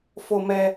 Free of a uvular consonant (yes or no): yes